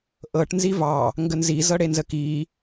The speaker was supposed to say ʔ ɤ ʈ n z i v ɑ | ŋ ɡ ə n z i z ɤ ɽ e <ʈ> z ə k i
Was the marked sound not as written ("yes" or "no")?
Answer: yes